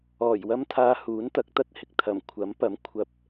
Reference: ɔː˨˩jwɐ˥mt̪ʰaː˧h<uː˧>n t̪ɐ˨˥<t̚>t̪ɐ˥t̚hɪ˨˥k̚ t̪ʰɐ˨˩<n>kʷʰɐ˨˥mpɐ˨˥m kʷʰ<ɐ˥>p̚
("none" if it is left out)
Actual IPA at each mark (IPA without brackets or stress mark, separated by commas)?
uː˨˥, k̚, m, ɐ˧